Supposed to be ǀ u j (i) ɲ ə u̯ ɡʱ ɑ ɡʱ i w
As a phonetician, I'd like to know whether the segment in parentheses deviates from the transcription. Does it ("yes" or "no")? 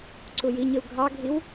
no